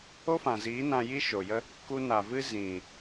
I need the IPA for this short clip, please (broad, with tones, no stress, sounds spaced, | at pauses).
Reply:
o˦ f ã˨ z iː˨˦ n ã˧ j i˦ ʃ o˨ j ə˦ | k u˧ n a˨ v ɨ˦ z ĩ˨